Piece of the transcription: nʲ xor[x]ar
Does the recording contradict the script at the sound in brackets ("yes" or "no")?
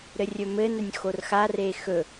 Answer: no